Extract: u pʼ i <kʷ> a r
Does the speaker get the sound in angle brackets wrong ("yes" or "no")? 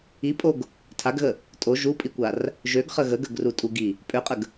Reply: no